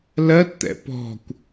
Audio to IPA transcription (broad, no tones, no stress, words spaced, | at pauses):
lɜtt̪ɛ̰ pɔ̤kʷ